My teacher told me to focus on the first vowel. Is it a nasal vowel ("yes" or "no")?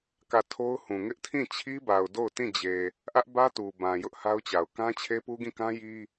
no